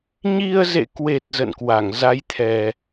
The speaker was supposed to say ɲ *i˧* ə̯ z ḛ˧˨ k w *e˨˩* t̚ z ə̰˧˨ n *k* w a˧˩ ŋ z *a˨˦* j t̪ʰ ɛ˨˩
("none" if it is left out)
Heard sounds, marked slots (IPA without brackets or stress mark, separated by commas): i˧, e˨˩, k, a˨˦